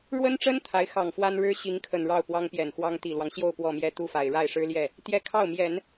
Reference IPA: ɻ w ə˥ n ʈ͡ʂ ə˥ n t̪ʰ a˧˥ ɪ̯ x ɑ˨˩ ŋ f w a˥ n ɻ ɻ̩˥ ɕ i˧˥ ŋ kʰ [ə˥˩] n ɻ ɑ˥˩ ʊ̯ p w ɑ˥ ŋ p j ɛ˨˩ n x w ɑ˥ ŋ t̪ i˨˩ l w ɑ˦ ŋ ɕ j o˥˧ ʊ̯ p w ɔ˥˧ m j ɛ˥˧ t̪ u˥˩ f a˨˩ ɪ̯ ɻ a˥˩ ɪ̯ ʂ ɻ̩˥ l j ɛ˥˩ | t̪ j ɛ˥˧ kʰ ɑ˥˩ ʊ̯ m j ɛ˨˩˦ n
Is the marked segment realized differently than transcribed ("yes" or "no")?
yes